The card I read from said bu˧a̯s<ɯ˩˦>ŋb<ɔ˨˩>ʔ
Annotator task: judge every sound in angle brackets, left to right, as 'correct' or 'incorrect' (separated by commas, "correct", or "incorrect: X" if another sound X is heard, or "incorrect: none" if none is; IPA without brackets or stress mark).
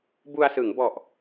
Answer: correct, correct